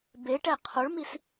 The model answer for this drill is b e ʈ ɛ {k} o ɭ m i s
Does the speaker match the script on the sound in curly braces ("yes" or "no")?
no